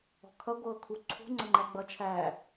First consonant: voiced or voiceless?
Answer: voiceless